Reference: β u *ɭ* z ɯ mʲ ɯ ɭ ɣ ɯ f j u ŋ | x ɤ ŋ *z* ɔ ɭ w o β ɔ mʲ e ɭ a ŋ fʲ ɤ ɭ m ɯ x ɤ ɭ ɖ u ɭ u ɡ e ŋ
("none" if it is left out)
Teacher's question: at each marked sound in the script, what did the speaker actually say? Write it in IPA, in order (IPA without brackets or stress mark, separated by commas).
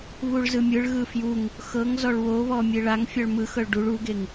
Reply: ɭ, z